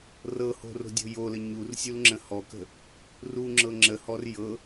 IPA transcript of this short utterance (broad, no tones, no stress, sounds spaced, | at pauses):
r ɤ h o̤ r o̤ dʲ o̤ j o l ə ɲ u r sʲ u l ŋ͡ǁ ə̃ h ɔ k ə̤ | r u ŋ͡ǁ ɤ ŋ͡ǁ ə h ɔ r j ɤ